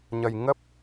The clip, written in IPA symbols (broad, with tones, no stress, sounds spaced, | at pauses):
ɲ ə˧ j ŋ ə˦˥ p̚